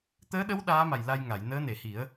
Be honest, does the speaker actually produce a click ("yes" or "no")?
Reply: no